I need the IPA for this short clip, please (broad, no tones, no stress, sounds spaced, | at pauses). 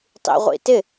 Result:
tˤ ḭ ʁʷ ḭ t ɪ